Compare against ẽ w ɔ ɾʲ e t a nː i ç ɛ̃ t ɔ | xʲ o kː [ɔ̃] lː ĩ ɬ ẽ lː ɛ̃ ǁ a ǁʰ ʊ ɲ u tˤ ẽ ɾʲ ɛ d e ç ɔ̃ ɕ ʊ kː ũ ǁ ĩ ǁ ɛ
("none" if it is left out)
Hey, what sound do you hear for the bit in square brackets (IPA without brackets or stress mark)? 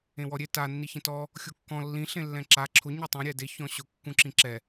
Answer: ɔ̃